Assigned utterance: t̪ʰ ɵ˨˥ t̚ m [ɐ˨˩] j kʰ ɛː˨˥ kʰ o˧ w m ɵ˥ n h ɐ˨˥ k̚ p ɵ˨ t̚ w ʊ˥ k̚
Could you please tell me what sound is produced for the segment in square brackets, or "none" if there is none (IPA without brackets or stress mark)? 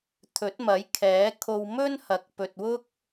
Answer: ɐ˨˥